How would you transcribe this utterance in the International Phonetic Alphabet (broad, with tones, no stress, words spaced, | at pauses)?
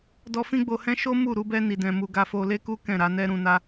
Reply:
dɔ˧fĩ˦ɡ͡bo˧hɛ̃˦ ʃo˦ mu˦˨ ɾu˨˦bɛ˦ ni˧dɛ̃˧mu˧ ɡa˧fo˧le˦ku˦ kɛ̃˦˨ɾa˨˦ nɛ˦ ɾũ˧na˦